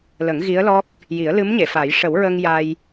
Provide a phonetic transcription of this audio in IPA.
lə˨˩˦ŋ ɣi˧˥ə̯lɔ˦˥k̚ | ji˨˩˦ə̯lɨ˧˥mɲe˨˩˨fa˨˩˦j ʂə˨˩˦wɹə˧ŋ ja˧j

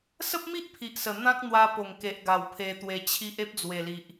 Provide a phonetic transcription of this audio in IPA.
sə˦p̚mi˦ʔ pʰi˨ʔsə˨˩ n̪ã˦k̚ n̪wa˧po˨˩ŋke˨ʔɡa˨˩w pʰe˧t̪we˧t͡ɕʰi˦ʔ e˦p̚d͡zwe˨˩li˨ʔ

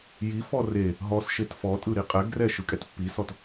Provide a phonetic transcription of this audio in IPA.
jifɔ re | ɦɔsʃet fɔtʼɯ ɾiqʼɛɡrɛ ʃɯkʼɛtpːisɔt

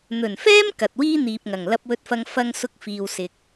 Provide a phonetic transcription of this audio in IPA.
n̪ɵ˨˩nfɛː˥m kɐ˨t̚wiː˥ n̪iː˨p̚ŋɐ˨˩ŋ lɐ˧p̚wɵ˧t̚fɐ˧ŋ fɐ˧ŋ sʊ˧k̚fiː˨wsɪ˨k̚

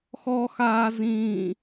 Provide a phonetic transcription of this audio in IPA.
xɔxaːzĩː

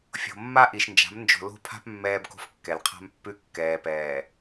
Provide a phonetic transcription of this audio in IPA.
fʲo̤˨mːa˦ʔi˨ʃnd͡ʒa̤˨˦m nd͡ʒo̤˨lo̤˦˨pʰa̤˦p mːɛː˦bko̤˦f kːɛ˨lqʰa̤˦mpːʉ˦ kːɛː˨pɛː˨

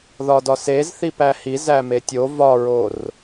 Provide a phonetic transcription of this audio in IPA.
ðɒdɒsez θipæhi zæmetʲo vɒɹor

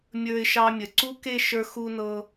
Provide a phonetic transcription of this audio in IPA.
mʲə˞˧ɪ̯ʃɑ˧mʲə˩˧ ǀu˥ke˥˧ʃə˞˧ xu˧nɤ˧

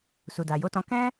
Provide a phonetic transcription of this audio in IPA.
su˨da˨jo˨˦tɔ̃˧ kɛ̃˦

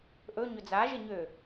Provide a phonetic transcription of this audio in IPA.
ʔɵ ɲɵd͡zaʒɪ ɲø

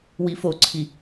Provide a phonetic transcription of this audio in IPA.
wifoǀʰi

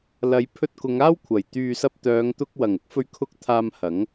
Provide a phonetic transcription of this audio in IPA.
lɐ˨˧jpʰɵ˧t̚ kʊ˨˧ŋaː˥wkʷʰɐ˨˩j t̪yː˨sɐ˧p̚t̪œː˨˧ŋt̪ʊ˧k̚ wɐ˨˩ŋʊ˥k̚fɵ˧ɥ kʰʊ˧k̚ t̪ʰaː˧mhɐ˨˥ŋ

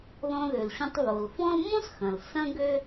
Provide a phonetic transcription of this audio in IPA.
ðɔ̃˧ðø˩lɕɔ̃˧tˤ βo˩lfɔ̃˥l mõ˥sxɐ̃˩l sɐ̃˥ɡø˥

